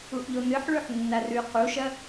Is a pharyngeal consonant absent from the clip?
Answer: no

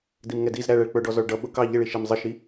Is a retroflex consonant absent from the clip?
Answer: no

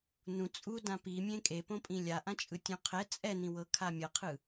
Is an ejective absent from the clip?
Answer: no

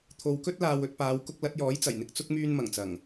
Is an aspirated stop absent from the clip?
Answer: no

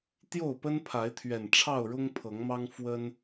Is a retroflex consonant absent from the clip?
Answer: no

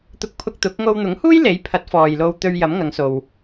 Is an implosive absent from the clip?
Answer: yes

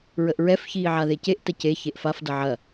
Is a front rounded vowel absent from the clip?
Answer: yes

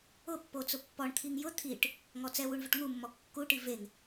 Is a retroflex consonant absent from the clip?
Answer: no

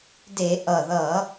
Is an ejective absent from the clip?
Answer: yes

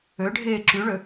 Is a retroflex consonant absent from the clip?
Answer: no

